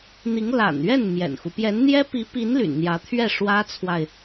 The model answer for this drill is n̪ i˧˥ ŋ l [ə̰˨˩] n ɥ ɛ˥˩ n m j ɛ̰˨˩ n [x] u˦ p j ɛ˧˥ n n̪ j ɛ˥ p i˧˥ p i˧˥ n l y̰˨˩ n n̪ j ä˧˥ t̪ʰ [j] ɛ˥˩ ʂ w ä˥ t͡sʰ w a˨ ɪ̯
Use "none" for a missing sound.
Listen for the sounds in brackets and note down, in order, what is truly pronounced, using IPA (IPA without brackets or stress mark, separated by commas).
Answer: a̰˨˩, x, ɥ